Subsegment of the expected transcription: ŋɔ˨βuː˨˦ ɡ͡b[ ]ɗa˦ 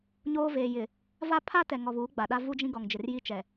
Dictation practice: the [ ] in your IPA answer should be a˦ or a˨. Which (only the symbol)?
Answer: a˨